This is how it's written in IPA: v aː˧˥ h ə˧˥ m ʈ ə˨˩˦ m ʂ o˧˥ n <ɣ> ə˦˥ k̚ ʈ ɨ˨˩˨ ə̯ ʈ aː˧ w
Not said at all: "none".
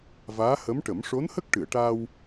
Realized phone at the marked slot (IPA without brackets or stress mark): h